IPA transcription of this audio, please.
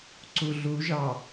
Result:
ǀ u ɮ u ʒ ɑ

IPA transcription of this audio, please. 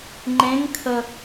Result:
ŋ͡ǃ ẽ ŋ kʰ ə

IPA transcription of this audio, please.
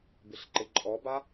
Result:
b ɪ ɬ ǃ ɪ ǃʼ ɔ b a

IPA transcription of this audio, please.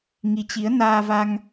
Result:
ŋ i˨˦ t͡ɕ i˨˦ ə̯ n aː˧ v a˧ ŋ

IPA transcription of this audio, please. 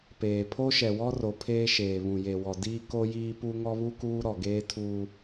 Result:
p eː˨ pʰ o˦ ʃ ɛ˨ w ɔ˦ r o˨ pʰ eː˦ ʃ eː˨ β ũ˨ j e˨ w ɔ˨ d iː˦ k o˦ j iː˦ p u˦ ŋ ɔ˦ β u˦ k uː˦ ɾ ɔ˨ ɡ eː˦ tʰ uː˦

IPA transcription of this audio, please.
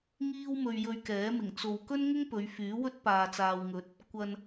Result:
ŋ iː˥ w m ɵ˧ ɥ j ɵ˧ ɥ k ɛː˨˥ m ɪ˨˩ ŋ t͡s o˨ w k ɵ˥ n ŋ ʊ˥ ŋ p ɵ˨˧ ɥ f yː˨˥ w ɵ˥ t̚ p aː˨ t͡s aː˨ w ŋ ɵ˨˥ t̚ | kʷ ɐ˨ n

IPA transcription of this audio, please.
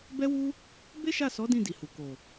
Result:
b ɛ˦ w u˦ | b e˦ ʃ a˦˨ s ɔ˨˦ d ĩ˦˨ d i˨ h u˨ k o˨

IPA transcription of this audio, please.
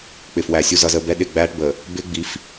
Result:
k͡p ɪː˨ f w æ˨ sʲ u˨ z ʌ˨ z əː˨ b ɛ˦ ɗ ɪ˦˨ ɡ͡b æː˦ ʈ b ə˨ | b ɪː˦ ɡ͡b i˨˦ f

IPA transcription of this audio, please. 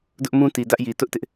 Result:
d ʊ˦ ʔ m ũ˦ t i˨ d ä˦ ʔ j i˨ t ʊ˦ ʔ t ɪ˦ ʔ

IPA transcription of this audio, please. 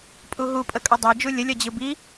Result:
pʼ u ɦ u pʼ ə kʼ ʌ dˤ ɛ d͡ʒ u lʲ ə lʲ ʌ d͡ʑ ɯ b i

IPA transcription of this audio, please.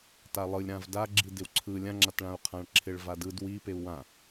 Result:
t a lˠ ɯ lʲ ɾ ã v d a ɡ͡ǁ i d ɪ w ǀʰ ɯ lʲ ã ŋ͡ǁ a t ɭ ã u̯ qʰ ã ɭ ǁʰ ɪ ɭ v a d ɯ d w i p e u̯ w ã

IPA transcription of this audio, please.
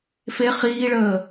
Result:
f e χ iː ɭ əː

